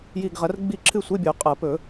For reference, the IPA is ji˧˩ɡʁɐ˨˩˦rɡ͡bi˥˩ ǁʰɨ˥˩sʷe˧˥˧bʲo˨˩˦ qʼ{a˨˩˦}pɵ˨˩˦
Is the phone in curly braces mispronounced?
yes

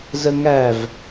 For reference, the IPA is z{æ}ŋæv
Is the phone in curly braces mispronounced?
yes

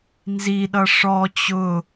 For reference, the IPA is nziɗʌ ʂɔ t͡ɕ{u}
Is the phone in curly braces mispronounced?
yes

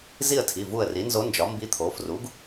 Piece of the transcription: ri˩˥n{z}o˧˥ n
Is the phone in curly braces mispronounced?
no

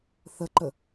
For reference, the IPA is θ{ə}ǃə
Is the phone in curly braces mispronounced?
no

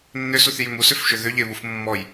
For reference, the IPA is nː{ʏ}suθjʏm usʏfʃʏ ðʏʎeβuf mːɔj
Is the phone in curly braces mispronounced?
no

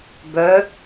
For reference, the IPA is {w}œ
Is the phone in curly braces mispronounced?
yes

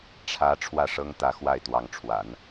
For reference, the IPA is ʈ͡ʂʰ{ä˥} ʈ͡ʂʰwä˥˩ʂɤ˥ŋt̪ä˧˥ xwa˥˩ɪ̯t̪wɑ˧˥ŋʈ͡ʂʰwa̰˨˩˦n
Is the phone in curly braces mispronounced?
yes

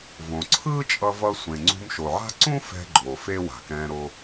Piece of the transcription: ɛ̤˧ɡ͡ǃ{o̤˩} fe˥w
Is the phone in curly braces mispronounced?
yes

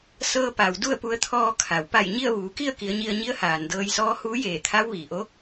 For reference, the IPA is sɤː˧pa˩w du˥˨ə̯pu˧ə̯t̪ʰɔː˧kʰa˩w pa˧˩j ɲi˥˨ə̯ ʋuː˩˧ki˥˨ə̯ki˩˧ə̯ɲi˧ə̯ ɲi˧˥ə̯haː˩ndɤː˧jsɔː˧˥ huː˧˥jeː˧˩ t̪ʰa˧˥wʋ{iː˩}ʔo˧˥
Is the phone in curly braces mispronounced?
no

